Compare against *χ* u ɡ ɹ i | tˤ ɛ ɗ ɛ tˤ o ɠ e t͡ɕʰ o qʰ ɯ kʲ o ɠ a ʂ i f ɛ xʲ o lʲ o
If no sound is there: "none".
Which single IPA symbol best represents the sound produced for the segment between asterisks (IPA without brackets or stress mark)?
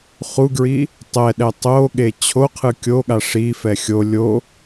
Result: χ